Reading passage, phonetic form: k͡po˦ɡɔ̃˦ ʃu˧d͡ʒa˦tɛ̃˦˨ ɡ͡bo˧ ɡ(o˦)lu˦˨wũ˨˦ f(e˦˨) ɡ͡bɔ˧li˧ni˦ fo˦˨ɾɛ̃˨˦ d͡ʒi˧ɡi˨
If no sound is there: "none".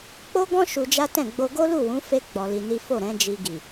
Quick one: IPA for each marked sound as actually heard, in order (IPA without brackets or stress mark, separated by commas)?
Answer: o˦, e˦